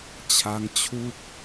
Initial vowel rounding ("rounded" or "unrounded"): unrounded